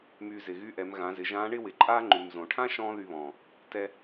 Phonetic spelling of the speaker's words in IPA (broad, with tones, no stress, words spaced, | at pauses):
myː˧zɪ˩ɣy˥ʔɛ˩˧m ɣã˩˧zɪ˩˧ʒãː˧˥ɳɪ˥ wɪ˩˧ǃʼaː˥ ŋ͡ǃy˩mzõ˩ʈʰã˥ ʃɔ̃ː˥ðy˧βɔ̃ː˩ | tɛ˧